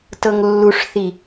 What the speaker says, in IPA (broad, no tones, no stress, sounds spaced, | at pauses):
t ɤ ŋ lː u ʂ θ i